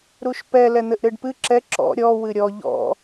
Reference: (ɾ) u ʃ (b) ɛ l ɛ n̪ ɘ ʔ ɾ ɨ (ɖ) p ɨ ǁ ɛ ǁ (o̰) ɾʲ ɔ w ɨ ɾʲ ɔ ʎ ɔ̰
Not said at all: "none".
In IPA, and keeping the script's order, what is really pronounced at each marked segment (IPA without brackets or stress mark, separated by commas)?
ɾ, p, ɖ, ɔ̰